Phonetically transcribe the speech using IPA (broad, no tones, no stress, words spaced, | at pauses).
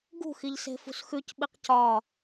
ɡṳxiʎse̤fṳs xʉcɓiq cɒ